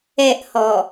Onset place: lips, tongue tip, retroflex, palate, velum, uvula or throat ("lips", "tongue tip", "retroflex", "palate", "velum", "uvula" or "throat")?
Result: throat